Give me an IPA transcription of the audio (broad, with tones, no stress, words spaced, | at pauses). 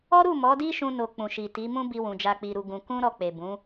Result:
ɔ˦ɾu˦˨ mɔ˨˦di˦ʃũ˧no˨ k͡pũ˨ʃi˨ ti˨˦mũ˦ bi˧wũ˨ d͡ʒa˧k͡pi˧ɾu˧ ɡũ˧ kũ˦ ɾɔ˧k͡pe˨ bũ˨˦